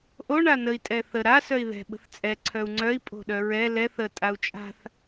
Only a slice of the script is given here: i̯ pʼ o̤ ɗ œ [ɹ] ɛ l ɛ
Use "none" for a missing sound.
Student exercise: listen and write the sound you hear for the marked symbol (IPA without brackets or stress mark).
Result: ɹ